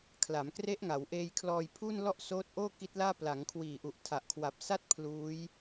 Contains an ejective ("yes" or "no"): no